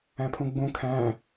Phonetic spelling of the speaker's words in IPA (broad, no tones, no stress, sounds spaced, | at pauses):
æ̃ pʰ ũ ɡ͡b ũ kʰ æ̃